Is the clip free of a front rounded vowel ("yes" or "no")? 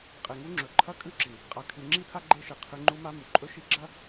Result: yes